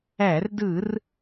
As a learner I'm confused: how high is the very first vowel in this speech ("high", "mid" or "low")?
low